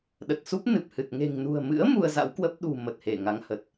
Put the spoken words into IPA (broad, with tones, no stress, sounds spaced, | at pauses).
ɗ ə˨˩ t̚ s u˦˥ p̚ n ɨ˨˩ p̚ h ɨ˨˩ t̚ ŋ e̤˨˩ ŋ n ṳ˨˩ ə̯ m ɨ̰˧˥ ə̯ m u˧ ə̯ z a̰˧˥ w k w ə˦˥ p̚ ɗ ṳ˨˩ m ə˨˩ t̚ h e˧˩ ŋ a˨˦ ŋ h ə˨˩ t̚